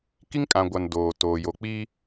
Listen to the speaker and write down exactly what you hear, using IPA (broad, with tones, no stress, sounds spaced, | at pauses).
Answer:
k i˦ ŋ kʼ ã˨ ɡʷ a˨ n d oː˨ t oː˨ j o˨ k͡p iː˦